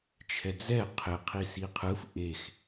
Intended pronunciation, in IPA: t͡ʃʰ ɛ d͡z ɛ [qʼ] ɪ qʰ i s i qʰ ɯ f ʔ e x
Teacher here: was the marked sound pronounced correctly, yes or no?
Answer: no